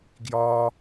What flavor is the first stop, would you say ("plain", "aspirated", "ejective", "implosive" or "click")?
plain